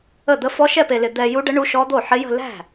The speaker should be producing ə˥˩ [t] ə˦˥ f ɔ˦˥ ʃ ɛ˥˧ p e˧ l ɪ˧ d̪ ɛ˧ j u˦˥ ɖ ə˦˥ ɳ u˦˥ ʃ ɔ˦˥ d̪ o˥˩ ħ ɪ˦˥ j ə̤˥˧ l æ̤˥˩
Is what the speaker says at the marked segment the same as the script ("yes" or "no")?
no